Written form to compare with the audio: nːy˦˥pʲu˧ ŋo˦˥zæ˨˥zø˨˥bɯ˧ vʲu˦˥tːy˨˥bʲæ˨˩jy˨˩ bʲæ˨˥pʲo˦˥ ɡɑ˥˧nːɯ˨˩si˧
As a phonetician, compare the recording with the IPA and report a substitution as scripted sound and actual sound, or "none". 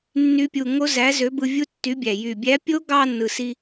none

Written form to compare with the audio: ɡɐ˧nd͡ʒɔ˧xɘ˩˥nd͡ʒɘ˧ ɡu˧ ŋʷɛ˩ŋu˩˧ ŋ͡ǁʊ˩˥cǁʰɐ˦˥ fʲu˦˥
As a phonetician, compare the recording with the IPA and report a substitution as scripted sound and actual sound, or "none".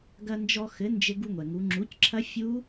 ʊ˩˥ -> u˩˥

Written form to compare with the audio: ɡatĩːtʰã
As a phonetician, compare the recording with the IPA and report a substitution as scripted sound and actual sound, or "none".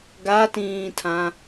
none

